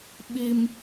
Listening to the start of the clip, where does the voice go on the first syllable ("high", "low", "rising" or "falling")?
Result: high